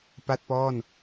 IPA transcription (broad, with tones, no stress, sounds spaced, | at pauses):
p a˥˩ t̚ p ɔː˥˩ n